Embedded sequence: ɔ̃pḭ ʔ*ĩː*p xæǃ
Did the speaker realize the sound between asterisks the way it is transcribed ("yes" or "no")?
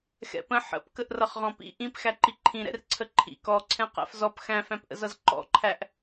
no